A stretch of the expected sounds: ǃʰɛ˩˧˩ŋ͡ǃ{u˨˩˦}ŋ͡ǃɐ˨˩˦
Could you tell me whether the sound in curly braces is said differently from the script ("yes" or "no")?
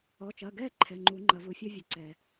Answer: no